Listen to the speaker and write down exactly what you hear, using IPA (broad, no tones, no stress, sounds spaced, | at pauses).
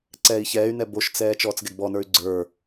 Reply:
ǀ ɛː i̯ ç ɛː y̯ n ɛ b o ʃ t͡s ɛː t͡ʃ ɔː t͡s ɡ ɛ ɡ b ɔ n ə˞ y̯ ɡ͡ǀ ə˞